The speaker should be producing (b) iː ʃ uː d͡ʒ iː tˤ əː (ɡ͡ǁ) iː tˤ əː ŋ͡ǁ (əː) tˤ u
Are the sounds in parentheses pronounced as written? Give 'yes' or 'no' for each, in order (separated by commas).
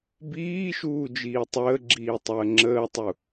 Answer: yes, yes, yes